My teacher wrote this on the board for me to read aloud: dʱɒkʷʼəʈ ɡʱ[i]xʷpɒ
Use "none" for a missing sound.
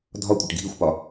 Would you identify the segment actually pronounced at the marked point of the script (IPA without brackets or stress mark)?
i